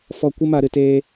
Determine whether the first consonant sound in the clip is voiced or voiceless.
voiceless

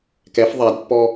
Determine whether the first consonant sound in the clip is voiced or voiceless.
voiceless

